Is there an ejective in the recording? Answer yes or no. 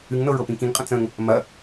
yes